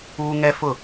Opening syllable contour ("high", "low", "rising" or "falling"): high